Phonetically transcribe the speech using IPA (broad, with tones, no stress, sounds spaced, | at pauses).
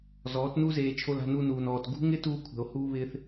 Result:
z ɔː˨˦ t n u˦ z eː˧ t͡ʃʰ o˧ l a̤˧ n u˧ n uː˨ n ɔː˨ t ɡ ṳ˦ ŋ ɪ˦ t uː˧ kʷʰ ɛ̤˨ o̯ h uː˧ β ɪː˧ θ